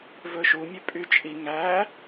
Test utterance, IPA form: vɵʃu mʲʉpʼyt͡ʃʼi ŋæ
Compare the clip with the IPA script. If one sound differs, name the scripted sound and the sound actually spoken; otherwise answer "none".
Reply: none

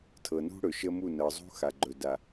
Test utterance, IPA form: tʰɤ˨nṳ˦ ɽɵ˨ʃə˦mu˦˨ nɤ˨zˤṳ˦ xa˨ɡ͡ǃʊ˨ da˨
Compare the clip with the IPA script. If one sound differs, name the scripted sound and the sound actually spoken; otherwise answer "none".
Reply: ʊ˨ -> ɵ˨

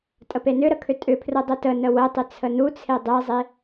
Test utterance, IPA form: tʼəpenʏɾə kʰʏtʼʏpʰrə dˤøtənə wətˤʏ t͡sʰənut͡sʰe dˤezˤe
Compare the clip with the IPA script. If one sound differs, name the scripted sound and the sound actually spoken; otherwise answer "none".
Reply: ø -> ə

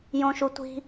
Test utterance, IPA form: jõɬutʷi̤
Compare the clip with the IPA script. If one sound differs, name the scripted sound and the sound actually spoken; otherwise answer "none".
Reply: ɬ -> ʃ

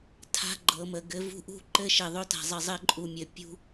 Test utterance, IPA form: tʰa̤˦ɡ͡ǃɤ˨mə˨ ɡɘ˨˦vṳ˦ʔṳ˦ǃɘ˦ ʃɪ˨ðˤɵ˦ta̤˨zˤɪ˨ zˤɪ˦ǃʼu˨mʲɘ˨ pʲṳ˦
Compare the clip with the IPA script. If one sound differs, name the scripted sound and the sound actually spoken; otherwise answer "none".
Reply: none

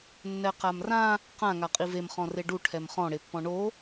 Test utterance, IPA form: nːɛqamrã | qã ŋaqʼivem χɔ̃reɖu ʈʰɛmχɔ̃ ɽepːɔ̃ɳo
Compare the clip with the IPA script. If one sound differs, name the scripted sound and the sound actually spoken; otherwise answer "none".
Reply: none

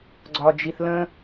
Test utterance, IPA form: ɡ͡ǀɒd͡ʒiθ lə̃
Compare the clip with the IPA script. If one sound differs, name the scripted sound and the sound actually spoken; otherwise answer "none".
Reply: none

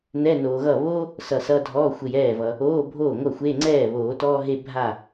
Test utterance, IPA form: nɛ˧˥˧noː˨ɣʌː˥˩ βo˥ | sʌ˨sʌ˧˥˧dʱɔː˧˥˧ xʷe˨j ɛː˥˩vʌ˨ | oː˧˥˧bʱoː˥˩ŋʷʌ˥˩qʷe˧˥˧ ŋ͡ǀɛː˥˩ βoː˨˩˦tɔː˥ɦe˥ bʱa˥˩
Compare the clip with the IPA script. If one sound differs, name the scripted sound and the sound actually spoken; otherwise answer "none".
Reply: qʷ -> xʷ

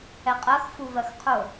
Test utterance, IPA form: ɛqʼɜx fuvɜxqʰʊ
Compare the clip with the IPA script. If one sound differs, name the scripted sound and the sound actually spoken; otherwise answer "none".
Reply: none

